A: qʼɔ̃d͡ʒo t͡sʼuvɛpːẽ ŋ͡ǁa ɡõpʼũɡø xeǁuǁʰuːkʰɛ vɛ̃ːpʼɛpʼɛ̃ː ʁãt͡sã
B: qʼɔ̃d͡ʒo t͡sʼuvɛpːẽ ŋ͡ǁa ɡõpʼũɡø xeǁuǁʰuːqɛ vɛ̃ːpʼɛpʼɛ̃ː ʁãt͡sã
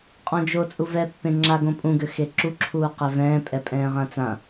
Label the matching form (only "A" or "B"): B